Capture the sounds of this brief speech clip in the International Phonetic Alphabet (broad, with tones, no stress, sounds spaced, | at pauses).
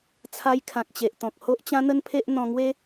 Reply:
t͡sʰ a˧ j kʰ ã˨ k̚ t͡ɕ e˨ ʔ t̪ ɔ̃˨ k̚ h o˦ ʔ t͡ɕ ã˦ n̪ ə˦ n pʰ e˦ ʔ n̪ ɔ̃˧ ŋ w e˦